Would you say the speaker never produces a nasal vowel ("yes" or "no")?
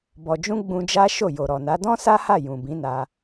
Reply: no